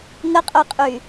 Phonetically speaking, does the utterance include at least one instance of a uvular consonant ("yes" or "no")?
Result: yes